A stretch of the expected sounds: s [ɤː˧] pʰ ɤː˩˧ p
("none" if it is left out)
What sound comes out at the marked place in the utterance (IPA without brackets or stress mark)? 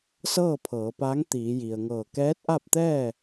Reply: ɤː˥˨